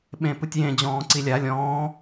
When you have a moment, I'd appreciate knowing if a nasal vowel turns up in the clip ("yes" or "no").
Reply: yes